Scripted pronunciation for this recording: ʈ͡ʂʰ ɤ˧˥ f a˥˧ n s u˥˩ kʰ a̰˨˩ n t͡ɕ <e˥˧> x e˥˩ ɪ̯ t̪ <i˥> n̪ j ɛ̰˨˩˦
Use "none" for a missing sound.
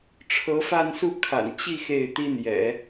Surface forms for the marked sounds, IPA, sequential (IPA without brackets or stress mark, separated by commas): i˥˧, i˥